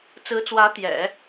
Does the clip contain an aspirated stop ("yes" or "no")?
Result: no